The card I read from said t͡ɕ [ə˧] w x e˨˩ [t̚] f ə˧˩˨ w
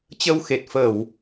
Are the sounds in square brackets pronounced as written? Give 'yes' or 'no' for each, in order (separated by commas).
yes, yes